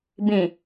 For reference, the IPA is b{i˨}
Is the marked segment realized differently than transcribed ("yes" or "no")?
yes